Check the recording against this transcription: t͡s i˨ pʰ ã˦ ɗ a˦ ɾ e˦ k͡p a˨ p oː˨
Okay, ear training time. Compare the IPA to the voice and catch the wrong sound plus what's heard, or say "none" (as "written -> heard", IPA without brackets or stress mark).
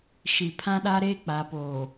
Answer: t͡s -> ʃ